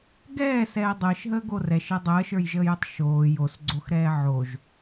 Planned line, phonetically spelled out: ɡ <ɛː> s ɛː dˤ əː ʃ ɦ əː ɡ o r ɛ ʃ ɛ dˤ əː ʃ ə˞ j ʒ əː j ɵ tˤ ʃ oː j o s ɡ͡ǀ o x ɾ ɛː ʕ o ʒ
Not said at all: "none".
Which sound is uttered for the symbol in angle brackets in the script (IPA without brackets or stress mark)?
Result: ɛː